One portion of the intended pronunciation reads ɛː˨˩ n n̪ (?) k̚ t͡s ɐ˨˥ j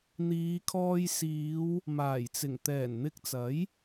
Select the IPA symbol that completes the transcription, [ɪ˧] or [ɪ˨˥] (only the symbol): ɪ˧